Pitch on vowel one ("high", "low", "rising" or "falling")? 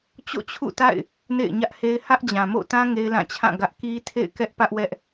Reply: falling